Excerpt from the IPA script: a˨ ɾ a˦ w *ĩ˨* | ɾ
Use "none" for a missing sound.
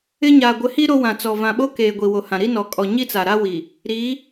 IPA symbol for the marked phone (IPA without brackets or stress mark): i˨